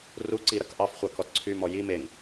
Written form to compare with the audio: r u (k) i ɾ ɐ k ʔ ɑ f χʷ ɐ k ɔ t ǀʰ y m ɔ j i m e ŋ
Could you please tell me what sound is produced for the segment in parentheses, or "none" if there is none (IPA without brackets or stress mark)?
ǀ